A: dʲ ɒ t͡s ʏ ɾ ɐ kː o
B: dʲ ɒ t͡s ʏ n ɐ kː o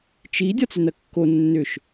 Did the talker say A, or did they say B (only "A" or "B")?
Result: B